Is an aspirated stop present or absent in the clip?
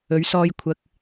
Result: present